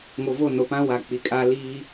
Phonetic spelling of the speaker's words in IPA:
ŋo˨vo˦˨ no˨pã˦ wa˨k͡pi˨kʼa˦ liː˦

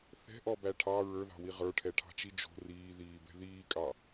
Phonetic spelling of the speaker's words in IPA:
θɛ̤ʔɔbæ ʈʰɑ ɹə˞ðɑ̤wi ʁə˞ʈʰɛʈʰɑ̤t͡ʃi d͡ʒo̤ riːðiːbɛ̤ ðiːkʼɑ

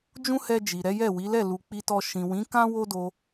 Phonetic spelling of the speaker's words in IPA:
d͡ʒũ˦hɛ˧d͡ʒi˨ ɾɛ˨˦jɛ˦˨wi˨˦lɛ˦˨ lu˨k͡pi˧tɔ˧ ʃĩ˨wĩ˨˦ kã˦ wo˦do˧

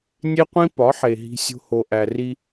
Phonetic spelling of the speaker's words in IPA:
nʲe˦qʷĩ˦ pɒ˨˦ħe˨ ɦi̤˦sʲo̤˦ ho˨ʔæ˨ ri˦

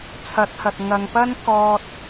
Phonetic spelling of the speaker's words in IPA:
t͡sʰɐ˨˥t̚hɐ˨t̚ ŋɐ˨ŋpɐ˥n kɔː˧t̚

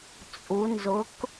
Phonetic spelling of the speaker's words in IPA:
t͡sʼu˩˧nzʊ˩˥k

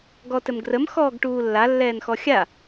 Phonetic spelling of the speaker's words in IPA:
ɡɔtɘmɡrəm xɔːɡʈuːlːa lːɛːnxɔxʲa

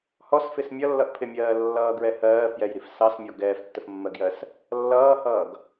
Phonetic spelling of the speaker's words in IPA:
hɔsfɪs mʲʌlːʌʔpʰɪmʲɜː lːʌːɡɹɛ hɜːfjɛjɾif sɑsmʲɔ ɡɛːftːəfmːɜɡjɜs | lːʌːhʌːɡ

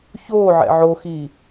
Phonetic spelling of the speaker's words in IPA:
çoːʕɛ̰ ʕoxiː

